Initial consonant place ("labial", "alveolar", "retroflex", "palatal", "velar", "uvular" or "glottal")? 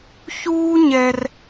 palatal